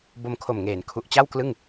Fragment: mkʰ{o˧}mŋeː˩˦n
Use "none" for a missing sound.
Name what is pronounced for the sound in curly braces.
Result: o˨˩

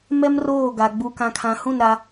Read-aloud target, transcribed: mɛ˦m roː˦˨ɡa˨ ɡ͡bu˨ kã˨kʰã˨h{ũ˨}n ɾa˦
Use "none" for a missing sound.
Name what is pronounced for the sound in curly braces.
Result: ũ˦˨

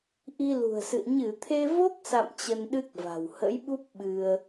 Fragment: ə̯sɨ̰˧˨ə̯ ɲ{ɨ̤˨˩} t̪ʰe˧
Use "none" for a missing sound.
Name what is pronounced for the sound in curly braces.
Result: ɨ˧˩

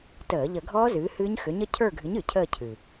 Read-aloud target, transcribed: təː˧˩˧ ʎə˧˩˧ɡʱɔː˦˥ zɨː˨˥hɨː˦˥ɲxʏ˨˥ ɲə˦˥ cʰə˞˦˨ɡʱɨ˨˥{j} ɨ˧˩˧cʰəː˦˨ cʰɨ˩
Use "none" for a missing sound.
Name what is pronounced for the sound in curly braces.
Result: ɲ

